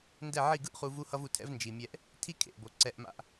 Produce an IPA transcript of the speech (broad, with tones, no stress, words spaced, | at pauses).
ndɛ˦˨ʕi˦˨ ɡɯ˦ʔχu˧ vu˦hʌ˦vu˧tʰɛ̰˦v nd͡ʒi˨mʲɛ˧ʔ | tʰi˦kʰḛ˨ʔbo˨ ǀɛ˧ʔma̰˧ʔ